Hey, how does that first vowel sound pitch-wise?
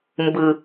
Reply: low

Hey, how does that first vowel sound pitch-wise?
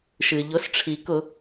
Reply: low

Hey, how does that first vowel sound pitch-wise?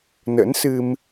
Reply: rising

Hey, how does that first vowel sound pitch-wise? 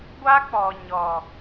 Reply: high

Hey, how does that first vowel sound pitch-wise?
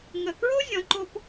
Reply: low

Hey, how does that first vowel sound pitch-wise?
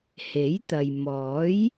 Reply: rising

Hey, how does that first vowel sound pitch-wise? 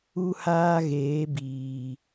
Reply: high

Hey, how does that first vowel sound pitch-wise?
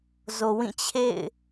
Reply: low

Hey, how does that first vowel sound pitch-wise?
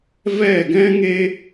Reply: falling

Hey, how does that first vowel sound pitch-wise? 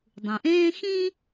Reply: low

